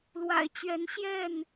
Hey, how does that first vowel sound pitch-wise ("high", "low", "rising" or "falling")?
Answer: low